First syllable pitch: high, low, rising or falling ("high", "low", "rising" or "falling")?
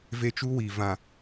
high